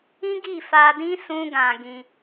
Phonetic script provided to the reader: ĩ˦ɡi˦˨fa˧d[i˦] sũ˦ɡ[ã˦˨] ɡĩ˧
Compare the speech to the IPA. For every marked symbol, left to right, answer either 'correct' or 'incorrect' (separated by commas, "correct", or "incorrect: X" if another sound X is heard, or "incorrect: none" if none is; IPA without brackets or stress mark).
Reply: incorrect: ĩ˦, incorrect: ã˧